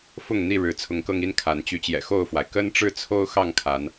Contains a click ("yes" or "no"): no